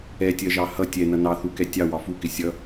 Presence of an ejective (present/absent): absent